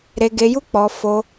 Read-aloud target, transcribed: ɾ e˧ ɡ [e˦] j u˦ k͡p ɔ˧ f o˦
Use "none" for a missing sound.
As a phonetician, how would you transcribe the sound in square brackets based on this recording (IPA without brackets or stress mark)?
e˧